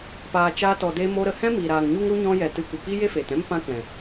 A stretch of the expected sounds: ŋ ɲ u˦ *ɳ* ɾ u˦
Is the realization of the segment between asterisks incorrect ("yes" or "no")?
yes